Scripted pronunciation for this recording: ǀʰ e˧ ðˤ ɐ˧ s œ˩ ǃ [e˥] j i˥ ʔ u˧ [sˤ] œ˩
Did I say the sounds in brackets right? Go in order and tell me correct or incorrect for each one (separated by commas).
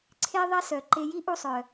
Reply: incorrect, correct